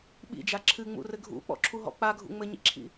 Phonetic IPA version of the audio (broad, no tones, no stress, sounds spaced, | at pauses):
ɓ ḭ d͡ʒ a ǁʰ ɨ ŋ͡m ṵ r ɘ ɡʱ ṵ k͡p ɔ̰ ǁʰ u ɦ ɔ̰ k͡p a ɡʱ ṵ ŋ͡m ɘ ɲ ḭ ǁʰ ḭ